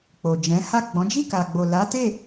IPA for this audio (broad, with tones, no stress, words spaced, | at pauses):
k͡po˨d͡ʒɛ̃˨˦ ha˦˨ɡ͡bɔ̃˨˦ d͡ʒi˦˨ka˨ɡ͡bo˨ la˨˦te˦˨